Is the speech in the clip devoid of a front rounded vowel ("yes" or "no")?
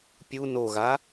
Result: yes